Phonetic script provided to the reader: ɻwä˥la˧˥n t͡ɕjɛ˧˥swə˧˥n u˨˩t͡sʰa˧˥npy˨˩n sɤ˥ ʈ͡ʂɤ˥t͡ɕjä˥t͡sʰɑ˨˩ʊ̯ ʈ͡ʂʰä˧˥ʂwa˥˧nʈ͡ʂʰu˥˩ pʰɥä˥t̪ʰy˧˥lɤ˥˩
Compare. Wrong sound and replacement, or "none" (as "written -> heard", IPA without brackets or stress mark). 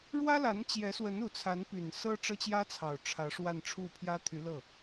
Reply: ɥ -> j